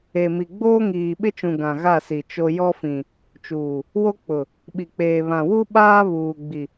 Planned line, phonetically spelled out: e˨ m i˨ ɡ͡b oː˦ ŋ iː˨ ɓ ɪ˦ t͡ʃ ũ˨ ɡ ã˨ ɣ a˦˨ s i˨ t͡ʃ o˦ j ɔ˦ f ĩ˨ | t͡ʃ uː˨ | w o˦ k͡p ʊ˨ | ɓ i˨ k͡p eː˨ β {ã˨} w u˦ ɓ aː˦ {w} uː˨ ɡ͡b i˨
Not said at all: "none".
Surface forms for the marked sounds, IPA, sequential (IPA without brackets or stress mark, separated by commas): ã˨, β